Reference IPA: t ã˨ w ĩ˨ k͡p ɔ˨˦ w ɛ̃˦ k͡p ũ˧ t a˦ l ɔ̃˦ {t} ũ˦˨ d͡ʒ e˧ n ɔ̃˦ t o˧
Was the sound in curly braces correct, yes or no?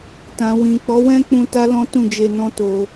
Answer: yes